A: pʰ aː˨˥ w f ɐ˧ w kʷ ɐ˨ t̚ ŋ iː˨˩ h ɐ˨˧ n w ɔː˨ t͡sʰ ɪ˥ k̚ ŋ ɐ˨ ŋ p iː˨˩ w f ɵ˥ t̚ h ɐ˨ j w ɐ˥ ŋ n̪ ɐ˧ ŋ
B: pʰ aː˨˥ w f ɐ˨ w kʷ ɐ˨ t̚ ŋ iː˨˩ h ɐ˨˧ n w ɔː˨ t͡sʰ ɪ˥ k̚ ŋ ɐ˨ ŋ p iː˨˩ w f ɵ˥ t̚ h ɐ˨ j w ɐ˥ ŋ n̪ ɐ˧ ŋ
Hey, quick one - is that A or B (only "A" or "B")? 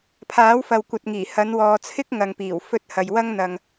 B